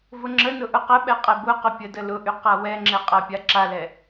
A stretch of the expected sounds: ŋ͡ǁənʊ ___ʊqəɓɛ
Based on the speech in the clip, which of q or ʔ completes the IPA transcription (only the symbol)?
ʔ